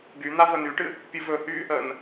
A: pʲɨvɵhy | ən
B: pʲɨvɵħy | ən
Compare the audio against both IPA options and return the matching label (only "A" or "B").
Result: A